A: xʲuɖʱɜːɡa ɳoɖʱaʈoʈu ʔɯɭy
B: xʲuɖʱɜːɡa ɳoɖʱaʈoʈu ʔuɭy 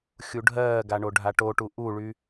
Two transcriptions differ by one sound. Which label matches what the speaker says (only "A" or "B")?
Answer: B